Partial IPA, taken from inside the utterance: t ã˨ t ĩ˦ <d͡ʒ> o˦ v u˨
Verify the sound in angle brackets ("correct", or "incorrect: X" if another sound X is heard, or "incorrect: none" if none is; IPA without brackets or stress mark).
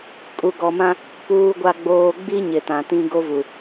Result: incorrect: ɡ